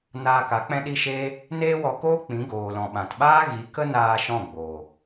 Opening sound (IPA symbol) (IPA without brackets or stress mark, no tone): n